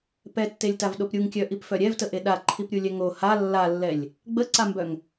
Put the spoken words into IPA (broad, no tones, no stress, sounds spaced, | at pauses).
p ɛ tː e lʲ t a v ɗ o p ɾʲ u ŋ kʲ œ ʔ i p f œ ɾʲ ɛ v t ə ʔ e ɗ a ǃʰ i p ɾʲ u lʲ ɛ ŋ o h a lː a lː ɛ lʲ | ɡ͡b ə ǀ a m b œ ŋ